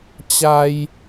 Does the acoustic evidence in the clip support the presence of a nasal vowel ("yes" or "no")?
no